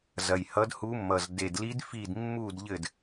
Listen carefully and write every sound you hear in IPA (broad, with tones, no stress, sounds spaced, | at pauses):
z ɐ˨˩ j h ʌ˧˥ d h u˧˥ mː ʌ˨˩ z d e˨˩ d l i˧˥ d f i˥˨ d mː u˥˨ d ʎ ɘ˥˨ d